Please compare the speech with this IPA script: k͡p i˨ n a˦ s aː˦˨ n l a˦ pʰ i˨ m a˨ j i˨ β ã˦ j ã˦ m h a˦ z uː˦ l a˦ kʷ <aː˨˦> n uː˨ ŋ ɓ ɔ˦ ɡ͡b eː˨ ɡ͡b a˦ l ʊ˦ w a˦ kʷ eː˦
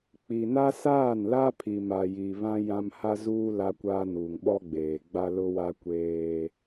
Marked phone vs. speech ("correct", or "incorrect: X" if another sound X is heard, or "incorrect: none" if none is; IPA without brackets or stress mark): incorrect: aː˦